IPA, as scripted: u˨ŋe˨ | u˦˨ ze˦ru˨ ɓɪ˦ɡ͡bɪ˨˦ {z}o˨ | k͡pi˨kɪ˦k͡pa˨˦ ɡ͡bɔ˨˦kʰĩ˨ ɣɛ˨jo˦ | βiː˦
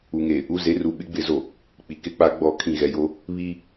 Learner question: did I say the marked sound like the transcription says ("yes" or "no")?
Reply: yes